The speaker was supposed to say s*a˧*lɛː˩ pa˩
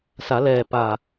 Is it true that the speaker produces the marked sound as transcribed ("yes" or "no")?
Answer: no